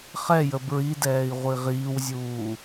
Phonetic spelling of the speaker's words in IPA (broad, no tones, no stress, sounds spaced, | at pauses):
χ ɛ j ə b ɹ i d ɛː i̯ ʁʷ i ʁ iː w zʲ uː